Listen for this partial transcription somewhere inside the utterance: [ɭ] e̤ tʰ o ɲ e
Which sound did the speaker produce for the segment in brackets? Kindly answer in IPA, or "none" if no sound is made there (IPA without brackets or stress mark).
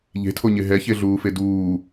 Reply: ʎ